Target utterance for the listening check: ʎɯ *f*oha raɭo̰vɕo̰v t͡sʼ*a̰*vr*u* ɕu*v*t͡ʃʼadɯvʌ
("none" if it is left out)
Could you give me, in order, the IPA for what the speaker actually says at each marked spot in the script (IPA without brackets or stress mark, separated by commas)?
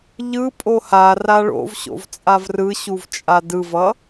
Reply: pʼ, a, ɯ, v